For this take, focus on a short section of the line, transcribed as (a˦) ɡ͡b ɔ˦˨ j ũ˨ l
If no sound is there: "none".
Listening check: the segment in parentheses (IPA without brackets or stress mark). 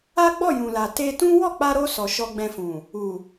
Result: a˦